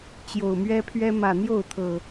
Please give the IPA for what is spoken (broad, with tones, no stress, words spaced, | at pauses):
t͡ɕjo˨˩ʊ̯mɥɛ˦pʰɥɛ˦ mä˨˩n̪jo˥˨ʊ̯t̪ʰɤ˨˩